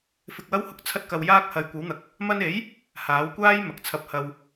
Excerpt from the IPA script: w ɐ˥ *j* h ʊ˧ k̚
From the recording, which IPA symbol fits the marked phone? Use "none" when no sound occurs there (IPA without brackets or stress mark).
w